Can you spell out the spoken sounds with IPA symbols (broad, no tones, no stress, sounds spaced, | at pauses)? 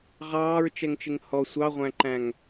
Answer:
ʁ ɑː ɹ t͡ʃ ɛ ŋ t͡ʃ ɪ ŋ h ɔ sʷ ɑ ʁʷ æ̃ ǃ æ̃ ŋ